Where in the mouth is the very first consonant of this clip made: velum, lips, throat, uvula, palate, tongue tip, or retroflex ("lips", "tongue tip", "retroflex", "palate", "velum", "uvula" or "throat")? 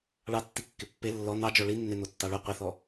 retroflex